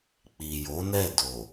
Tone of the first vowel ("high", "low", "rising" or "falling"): low